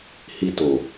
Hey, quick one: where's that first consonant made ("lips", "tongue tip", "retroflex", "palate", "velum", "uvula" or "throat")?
throat